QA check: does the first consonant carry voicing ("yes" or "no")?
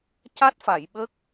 no